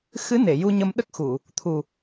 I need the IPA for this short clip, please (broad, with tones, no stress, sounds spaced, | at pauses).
x ɨ˧˥ n e˨˩˨ j u˧ ɲ ə˧ m ɗ ə˦˥ k̚ x u˨˩˨ | t̪ʰ u˨˩